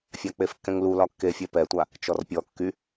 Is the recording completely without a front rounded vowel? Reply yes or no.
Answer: no